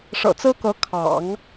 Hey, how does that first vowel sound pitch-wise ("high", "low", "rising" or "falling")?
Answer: low